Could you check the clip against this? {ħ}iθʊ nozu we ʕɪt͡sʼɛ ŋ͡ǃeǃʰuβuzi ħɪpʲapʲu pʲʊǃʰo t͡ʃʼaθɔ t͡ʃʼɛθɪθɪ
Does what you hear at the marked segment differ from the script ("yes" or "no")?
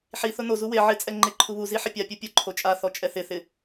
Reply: no